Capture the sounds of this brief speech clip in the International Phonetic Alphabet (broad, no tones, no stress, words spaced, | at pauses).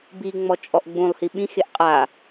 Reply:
biŋ͡mɔ t͡ʃʼɔʔɡ͡bũlˠhi ɓĩxeʔ qʼa